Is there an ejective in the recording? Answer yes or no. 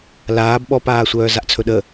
no